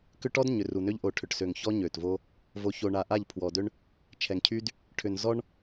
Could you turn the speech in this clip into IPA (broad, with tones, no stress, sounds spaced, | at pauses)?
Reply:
k ʏ˦ ʈ ɔ˦ d ɲ ʏ˨ r u˨ n ø˦ ʎ ʔ o˨ ʈʰ ʏ˨ ʈ s ø˨ ŋ ç ɔ˦ ɲ ø˨ t v o˦ | v o˨ ç o˨ ɳ a˨ ʔ a˦˨ ʎ pʰ w ɔ˨ d ø˦ ɳ | t͡ʃʰ ɛ˨ ŋ cʰ y˦ d | ʈʰ ʏ˨ n z ɔ˦ ɳ